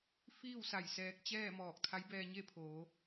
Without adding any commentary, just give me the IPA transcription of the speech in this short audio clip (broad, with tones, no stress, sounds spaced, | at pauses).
f iː˥˨ w s a˧˩ j s ɛː˧ k̚ t͡ɕ ɛː˥˨ m ɔː˧˩ k̚ t̪ʰ a˧˥ j b ɛː˧ ɲ e˥˨ pʰ oː˩˧